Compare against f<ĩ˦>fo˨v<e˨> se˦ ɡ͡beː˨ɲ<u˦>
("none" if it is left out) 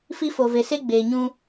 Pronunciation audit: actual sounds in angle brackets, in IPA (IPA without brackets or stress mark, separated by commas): i˦, e˨, ũ˦